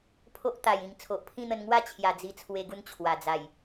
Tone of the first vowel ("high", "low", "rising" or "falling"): high